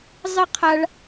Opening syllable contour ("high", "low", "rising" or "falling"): high